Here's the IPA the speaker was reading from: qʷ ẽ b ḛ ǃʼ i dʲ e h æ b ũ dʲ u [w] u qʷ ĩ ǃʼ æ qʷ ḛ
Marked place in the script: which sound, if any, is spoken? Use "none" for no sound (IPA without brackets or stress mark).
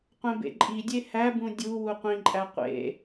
w